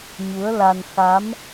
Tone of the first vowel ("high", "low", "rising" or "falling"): rising